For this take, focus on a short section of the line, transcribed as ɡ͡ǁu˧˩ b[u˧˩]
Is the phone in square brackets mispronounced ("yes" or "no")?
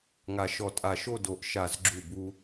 yes